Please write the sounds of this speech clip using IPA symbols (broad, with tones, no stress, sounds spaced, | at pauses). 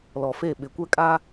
l ɔ˨ f e˦˨ ɓ ɪ˨ kʷ ɛ˦ kʼ a˦